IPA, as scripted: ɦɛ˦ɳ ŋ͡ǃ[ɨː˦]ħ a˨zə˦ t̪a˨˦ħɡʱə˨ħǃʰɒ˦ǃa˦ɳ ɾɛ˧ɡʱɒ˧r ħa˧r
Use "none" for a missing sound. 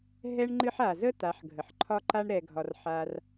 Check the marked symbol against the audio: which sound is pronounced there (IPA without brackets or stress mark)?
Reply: ɨ˦